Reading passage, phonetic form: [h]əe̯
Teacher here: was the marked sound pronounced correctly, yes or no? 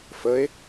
no